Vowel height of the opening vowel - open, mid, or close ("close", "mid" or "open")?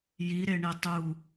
close